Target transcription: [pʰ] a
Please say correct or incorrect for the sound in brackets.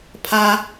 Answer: correct